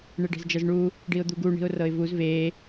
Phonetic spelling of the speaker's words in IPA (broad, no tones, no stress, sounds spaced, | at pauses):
ɳ e ɖ e̤ z d͡ʒ ɤ z ɳ u | ɖ i ʊ̯ d̪ u ɡ u ɳ i̤ ʊ̯ r ɤ ɪ̯ v u z v e